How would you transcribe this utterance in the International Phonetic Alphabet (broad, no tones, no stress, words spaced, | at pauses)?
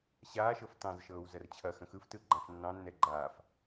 ɕaːʃɤf tɑ̃z ʃɤːwzɐrt͡ɕʰɐxə̃ xɯftɯ ɡ͡ǃãfnːɑ̃nːɛ ɡ͡ǃaːf